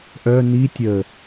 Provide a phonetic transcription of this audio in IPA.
ʔ œ n i tʲ ə

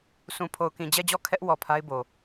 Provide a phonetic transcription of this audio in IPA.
s ũ˨ pʰ o˨ ʊ̯ k ĩ˨ d͡ʑ ɛ˦˨ d͡ʑ ɔ˦˨ kʰ ɛ˦ ʔ w ɔ˨ pʰ a˦ ɪ̯ b o˨

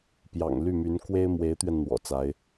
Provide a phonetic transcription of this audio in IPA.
p j ɑ̰˨˩ ŋ l y˥˩ m y˧˥ n k w e˥ ɪ̯ m w e˧˥ ɪ̯ t̪ ɥ ɛ˧ n n̪ w ɔ̰˨˩ t͡s a˧˥ ɪ̯

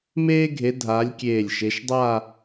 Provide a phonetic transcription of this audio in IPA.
m eː˥ ɡʱ e˨˦ dʱ a˨˦ lʲ kʲ eː˧˩ lʲ ʃ e˨˦ ʃ dˤ a˥˧

